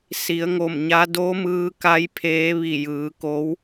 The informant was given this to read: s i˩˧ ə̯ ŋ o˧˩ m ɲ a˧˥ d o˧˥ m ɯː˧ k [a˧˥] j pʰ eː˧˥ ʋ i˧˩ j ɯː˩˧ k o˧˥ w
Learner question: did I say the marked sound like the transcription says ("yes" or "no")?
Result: yes